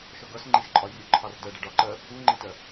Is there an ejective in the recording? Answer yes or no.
yes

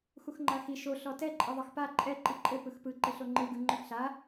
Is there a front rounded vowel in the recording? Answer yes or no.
yes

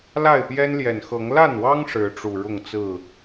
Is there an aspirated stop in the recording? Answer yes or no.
no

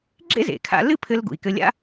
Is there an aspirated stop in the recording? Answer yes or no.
yes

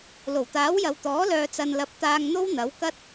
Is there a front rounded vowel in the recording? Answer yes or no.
yes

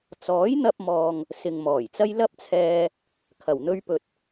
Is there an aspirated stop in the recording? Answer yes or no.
yes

